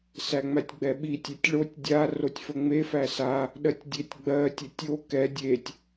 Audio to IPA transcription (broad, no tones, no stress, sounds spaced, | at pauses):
s æ ŋ͡m æ tʲ ɡ͡b ɛ ɓ i tʲ ɛ tʲ ɭ o tʲ dʲ a r o tʲ f ə ŋ͡m e f æ s a | ɗ ɜ tʲ dʲ e tʲ ɡ͡b ɜ tʲ ə tʲ o k ɛ dʲ e tʲ